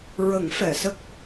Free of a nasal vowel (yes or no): yes